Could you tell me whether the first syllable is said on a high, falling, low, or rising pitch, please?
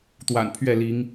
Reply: low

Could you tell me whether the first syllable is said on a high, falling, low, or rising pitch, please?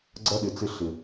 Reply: high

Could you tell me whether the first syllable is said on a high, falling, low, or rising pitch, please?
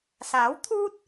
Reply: rising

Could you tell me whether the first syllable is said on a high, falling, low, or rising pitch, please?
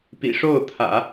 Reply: low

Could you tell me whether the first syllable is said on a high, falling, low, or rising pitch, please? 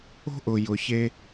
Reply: high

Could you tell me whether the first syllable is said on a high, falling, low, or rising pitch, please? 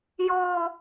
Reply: high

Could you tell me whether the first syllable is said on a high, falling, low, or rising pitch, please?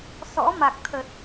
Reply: rising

